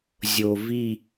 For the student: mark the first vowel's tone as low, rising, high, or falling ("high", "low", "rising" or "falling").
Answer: low